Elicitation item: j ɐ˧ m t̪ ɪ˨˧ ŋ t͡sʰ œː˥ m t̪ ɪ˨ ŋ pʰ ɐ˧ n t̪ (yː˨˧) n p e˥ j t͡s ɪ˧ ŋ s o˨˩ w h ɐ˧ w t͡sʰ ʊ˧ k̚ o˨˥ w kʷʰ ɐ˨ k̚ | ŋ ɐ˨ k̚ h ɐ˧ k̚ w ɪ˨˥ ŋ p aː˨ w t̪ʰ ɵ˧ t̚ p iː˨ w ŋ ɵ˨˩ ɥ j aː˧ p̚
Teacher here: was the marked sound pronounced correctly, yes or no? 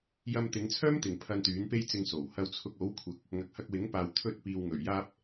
no